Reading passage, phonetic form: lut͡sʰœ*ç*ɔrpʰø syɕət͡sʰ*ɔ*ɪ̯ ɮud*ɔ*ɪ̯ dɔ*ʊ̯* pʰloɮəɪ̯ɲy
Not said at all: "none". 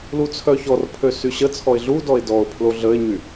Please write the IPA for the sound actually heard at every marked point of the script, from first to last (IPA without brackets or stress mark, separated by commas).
ç, ɔ, ɔ, ʊ̯